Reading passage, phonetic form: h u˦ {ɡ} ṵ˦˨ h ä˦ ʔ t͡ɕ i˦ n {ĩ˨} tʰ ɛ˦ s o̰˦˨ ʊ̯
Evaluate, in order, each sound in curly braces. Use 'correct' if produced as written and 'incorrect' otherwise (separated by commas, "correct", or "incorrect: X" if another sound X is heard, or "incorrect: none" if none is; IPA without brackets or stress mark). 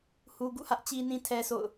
correct, incorrect: ĩ˦